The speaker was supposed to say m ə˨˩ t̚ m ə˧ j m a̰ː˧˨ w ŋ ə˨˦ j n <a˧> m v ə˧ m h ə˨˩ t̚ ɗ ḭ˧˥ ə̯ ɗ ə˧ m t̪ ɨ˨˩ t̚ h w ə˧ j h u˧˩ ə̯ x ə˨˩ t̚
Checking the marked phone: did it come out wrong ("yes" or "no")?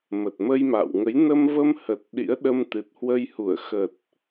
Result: yes